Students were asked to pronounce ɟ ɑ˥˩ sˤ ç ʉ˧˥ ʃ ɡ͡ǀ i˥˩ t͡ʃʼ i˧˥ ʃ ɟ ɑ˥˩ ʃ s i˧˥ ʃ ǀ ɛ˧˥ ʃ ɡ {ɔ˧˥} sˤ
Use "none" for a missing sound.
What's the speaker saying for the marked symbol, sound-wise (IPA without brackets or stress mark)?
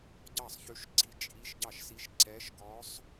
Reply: ɔ˧˥